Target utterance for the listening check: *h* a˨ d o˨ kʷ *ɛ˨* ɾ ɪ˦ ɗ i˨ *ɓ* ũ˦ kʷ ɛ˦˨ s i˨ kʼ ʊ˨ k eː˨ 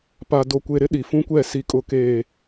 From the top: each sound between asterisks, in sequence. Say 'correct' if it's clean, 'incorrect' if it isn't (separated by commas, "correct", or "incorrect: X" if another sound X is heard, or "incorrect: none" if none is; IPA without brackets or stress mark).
incorrect: p, incorrect: e˨, incorrect: f